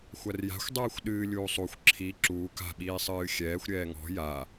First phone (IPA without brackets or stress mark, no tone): xʷ